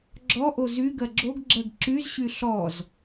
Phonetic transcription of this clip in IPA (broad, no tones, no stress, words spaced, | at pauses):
ɡ͡ǁɔʔo zyɡɜ ɡ͡ǁoɡɡ͡ǁɜɡ ǁyzɕy ɬɔz